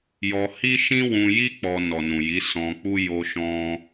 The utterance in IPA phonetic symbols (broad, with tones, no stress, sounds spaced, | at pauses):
j ɔ˧ h i˦ ʃ ĩ˦ w ũ˧ j i˦ k͡p ɔ˧ n ɔ˨ n ũ˨ j i˨˦ s ɔ̃˧ k͡p u˦ j o˦ ʃ ɔ̃˦